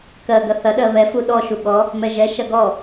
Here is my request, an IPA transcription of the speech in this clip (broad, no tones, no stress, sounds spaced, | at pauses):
k ɜ ɡ ɐ θ ɐ ɗ ɜ β ɛ f u ɗ ɔ ʃ u ɠ ɔ | m ɛ ʒ ɛ ʃ ɐ ɡ ɔ